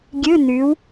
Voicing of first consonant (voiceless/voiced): voiced